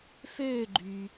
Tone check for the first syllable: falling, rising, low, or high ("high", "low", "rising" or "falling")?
falling